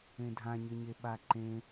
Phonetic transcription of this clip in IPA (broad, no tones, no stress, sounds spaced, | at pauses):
ẽ dʱ ã ɲ ɘ ɲ e ɓ a ǃ ẽ